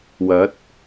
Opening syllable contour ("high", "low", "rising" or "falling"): rising